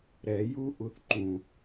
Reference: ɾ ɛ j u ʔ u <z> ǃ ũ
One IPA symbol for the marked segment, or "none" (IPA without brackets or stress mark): θ